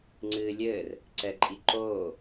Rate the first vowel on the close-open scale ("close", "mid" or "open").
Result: close